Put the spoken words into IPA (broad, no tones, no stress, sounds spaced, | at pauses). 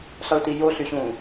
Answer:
ɬ ɑ ɭ t i j o ɬ y ɕ ũ